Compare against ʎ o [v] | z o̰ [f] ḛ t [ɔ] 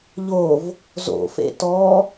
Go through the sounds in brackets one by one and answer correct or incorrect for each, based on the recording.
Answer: correct, correct, correct

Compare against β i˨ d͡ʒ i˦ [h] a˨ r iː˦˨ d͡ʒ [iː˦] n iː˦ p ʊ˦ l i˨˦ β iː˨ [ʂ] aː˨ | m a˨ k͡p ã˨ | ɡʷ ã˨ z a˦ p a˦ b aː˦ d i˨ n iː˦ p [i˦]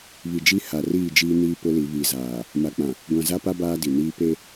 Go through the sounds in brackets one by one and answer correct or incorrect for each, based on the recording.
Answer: correct, correct, incorrect, incorrect

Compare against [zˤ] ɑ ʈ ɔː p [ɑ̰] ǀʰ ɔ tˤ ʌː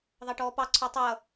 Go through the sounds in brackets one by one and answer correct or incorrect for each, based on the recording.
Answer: incorrect, incorrect

